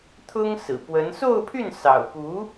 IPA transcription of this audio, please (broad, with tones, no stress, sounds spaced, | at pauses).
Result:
t̪ʰ ʊ˥ ŋ s ɹ̩˨˩ p w ə˧˥ n s o˥˧ ʊ̯ pʰ y˥˩ n s ɑ̰˨˩ ʊ̯ p u˧˥